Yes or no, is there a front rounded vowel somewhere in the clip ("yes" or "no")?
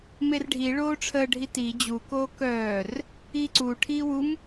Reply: yes